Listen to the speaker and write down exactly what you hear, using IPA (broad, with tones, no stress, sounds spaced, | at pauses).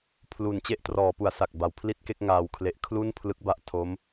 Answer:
pʰ l u˨˩ n t͡ɕ e˥˩ ʔ t r ɔː˩˦ p u˩˦ a̯ s a˨˩ k̚ b a˨˩ w pʰ l i˥˩ t̚ k e˥˩ k̚ ŋ aː˧ w kʰ l e˦˥ ʔ kʰ l u˥˩ n pʰ l ɯ˦˥ k̚ b a˦˥ ʔ tʰ o˦˥ m